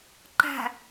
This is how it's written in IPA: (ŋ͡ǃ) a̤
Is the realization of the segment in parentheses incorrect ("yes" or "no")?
yes